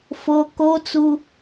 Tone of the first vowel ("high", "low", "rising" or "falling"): high